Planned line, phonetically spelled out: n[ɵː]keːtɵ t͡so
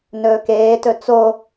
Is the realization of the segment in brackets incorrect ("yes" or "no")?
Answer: no